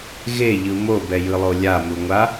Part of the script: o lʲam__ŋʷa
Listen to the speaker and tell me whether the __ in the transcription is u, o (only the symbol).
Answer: u